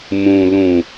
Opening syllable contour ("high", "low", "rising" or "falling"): low